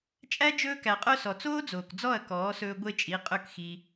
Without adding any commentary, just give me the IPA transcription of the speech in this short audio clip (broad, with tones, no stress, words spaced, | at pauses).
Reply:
t͡ʃʼæ˦ d͡ʒɵː˧kæ˨qʼœ˧ sɔ˨t͡soː˦d͡zoː˨kd͡zɔ˦˨ɐ̯ kɔː˨˦sɵː˧ ɡʷe˦t͡ʃʼi˨˦qʼɵ˦˨kxi˧